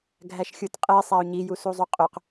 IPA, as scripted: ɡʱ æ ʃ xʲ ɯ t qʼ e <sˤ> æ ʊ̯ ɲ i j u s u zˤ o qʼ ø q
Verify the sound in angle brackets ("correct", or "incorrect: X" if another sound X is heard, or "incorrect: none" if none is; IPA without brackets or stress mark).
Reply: correct